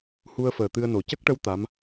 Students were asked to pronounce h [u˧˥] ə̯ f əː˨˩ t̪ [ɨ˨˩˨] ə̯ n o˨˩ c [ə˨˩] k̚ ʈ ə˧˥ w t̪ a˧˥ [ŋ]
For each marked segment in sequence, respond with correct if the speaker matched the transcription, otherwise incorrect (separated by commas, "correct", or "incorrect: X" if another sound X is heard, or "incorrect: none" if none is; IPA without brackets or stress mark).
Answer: incorrect: u˧, incorrect: ɨ˧, incorrect: ə˦˥, incorrect: m